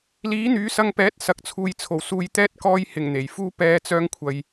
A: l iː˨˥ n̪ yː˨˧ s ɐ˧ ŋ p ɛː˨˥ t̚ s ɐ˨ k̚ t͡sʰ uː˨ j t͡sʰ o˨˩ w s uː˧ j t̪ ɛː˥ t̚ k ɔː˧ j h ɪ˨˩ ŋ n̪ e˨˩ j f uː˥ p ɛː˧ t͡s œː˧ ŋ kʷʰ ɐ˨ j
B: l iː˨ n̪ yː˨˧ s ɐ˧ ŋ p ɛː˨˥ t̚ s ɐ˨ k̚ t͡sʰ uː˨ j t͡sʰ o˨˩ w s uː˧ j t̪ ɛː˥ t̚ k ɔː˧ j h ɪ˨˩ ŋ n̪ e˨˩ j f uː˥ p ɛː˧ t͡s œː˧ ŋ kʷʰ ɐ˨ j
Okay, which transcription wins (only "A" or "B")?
A